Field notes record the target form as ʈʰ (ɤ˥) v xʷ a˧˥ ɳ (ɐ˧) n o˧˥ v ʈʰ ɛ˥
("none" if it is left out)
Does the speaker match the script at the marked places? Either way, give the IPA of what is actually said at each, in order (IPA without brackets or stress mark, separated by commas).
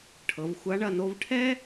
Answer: ɤ˩˧, ɐ˧